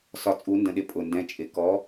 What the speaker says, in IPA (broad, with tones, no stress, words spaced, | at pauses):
sɒ˩˧t͡sʼu˩˧ndə̃˩ɗɪ˩˧ pʼʊ˩ndɛ̃˩˧t͡ʃʼɪ˩ kɔ˩˧